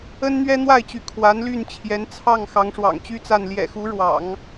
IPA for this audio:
ə˥ n n̪ ɥ ɛ˥ n̪ w a˥˩ ɪ̯ t͡ɕ y˧˥ kʰ w a˧˥ n l y˥˩ n t͡ɕʰ j ɛ˧˥ n t͡sʰ ɑ˥˩ ŋ x ɑ˧˥ ŋ ʂ w ɑ̰˨˩ ŋ t͡ɕ y˥˧ t͡s a˥˩ n l j ɛ̰˨˩ x u˧˥ ɻ w ɑ̰˨˩˦ ŋ

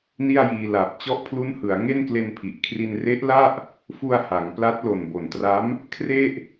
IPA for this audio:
n i˥˩ a̯ j iː˧ l a˨˩ p̚ t͡ɕ ɔ˦˥ ʔ pʰ l u˦˥ n h ɯ˩˦ a̯ ŋ e˥˩ n k l e˧ n pʰ i˨˩ ʔ kʰ r i˧ n r e˦˥ ʔ l a˥˩ ʔ | f u˧ a̯ h a˩˦ ŋ p l a˦˥ t̚ l o˨˩ n b o˨˩ n t r a˦˥ m | kʰ r e˥˩ ʔ

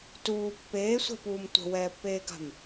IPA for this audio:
t uː pː eː sʷ ɛ̤ p uː m tʷ ə̤ w ɛː pː eː ɡ a̤ m

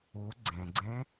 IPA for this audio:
u ɡ͡ǀ ẽ ɡ͡ǀ ẽ

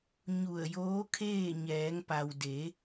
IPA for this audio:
ɲ u˧˩ ə̯ j oː˧˥ kʰ eː˥˨ ɲ ɛː˩˧ ŋ p a˩ w d e˩˧

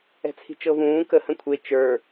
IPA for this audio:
ɛ̤ t͡sʰ i̤ t͡ʃ ɤ v ũː k ə h ə̃ kʷʰ e t͡ʃ ə˞

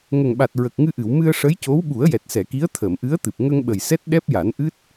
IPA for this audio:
ŋ ə˨˩ ŋ ɓ a˨˩ t̚ ɹ ə˨˩ k̚ ŋ ɨ˧ ʔ ɨ˨˩˨ w m ɨ˧ ə̯ ʂ ə˧˥ j c o˧˥ w ɓ u˨˩˦ ə̯ j ɛ˨˩ t̚ s ɛ˨˩˨ k i˧˥ ə̯ t̪ʰ əː˨˩˨ m ʔ ɨ˧˥ ə̯ t̪ ɨ˨˩ p̚ ŋ ə˧ ŋ ɓ ə˨˩ j s ɛ˦˥ t̚ ɗ ɛ˦˥ p̚ j a˨˩˦ n ʔ ɨ˦˥ t̚

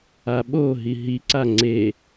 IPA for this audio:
a ɓ o ɦ i ɦ i ǀ a ŋ͡ǀ e

